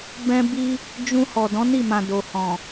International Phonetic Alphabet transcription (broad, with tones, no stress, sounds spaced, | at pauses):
b ɛ̃˦ b i˦ | d͡ʒ ũ˧ h ɔ˨ d ɔ̃˨˦ n i˦˨ m ã˨ d o˨ h ɔ̃˨